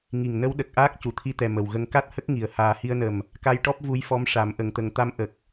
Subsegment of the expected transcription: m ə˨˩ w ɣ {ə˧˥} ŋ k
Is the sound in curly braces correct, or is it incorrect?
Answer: incorrect